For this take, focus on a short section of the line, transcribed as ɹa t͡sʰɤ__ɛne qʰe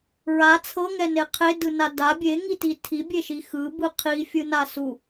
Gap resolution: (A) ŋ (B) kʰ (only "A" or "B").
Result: A